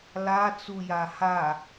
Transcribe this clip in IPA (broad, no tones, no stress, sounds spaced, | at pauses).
l a t͡s u j a h a